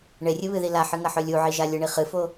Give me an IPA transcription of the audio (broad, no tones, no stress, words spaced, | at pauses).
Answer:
ɳerʲɨβɨði laħɨŋɐħɵ lʲuʕiʒa lʲɨɳi χɨfo